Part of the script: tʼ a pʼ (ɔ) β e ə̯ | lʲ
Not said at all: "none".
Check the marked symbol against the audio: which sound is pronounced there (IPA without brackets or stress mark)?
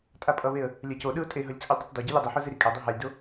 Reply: ʌ